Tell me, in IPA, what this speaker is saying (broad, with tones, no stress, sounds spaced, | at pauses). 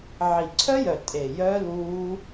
ʕ i˨˩ ǀʰ œ˦˥ j œ˨˩ tʼ e˨˩ j œ˦˥ l uː˦˥